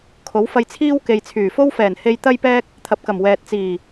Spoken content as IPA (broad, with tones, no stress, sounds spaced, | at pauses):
kʰ o˨˥ w f ɐ˧ j t͡sʰ iː˥ w k e˨ j t͡sʰ yː˨˩ f o˥ w f ɛː˨˩ n h e˧ j t̪ ɐ˥ j p ɛː˥ k̚ | t̪ʰ ɐ˨˥ p̚ k ɐ˨˩ m w ɛː˨ t̚ t͡s iː˨˩